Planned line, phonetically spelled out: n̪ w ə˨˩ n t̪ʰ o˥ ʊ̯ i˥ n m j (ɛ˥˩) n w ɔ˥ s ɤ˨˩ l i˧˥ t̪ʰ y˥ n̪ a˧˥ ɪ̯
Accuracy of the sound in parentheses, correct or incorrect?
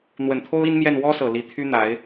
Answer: correct